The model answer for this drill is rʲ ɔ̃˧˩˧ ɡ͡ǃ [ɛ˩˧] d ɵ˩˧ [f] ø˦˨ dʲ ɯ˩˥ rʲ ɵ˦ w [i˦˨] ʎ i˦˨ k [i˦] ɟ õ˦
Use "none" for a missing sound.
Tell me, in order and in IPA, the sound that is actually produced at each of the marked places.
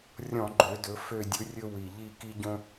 ø˩˧, f, i˨˩, i˦

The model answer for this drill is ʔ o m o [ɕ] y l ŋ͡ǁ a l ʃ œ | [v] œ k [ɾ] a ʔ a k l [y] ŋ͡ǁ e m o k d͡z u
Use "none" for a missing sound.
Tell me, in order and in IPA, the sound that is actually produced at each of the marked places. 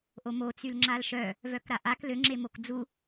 t͡s, v, ɾ, ø

